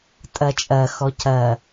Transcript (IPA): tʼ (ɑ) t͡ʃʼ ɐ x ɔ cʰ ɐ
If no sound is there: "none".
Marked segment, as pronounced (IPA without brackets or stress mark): ɐ